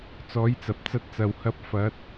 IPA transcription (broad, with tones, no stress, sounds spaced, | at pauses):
t͡s ɔː˨˥ j t͡s ɐ˨ p̚ t͡s ɐ˧ t̚ t͡s ɐ˨ w h ɐ˧ p̚ f ɐ˨˥ t̚